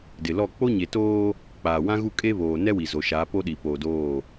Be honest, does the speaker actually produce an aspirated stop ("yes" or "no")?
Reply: no